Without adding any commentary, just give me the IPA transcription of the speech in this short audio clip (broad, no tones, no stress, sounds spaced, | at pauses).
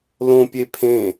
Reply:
l õ pʲ e pʰ ẽ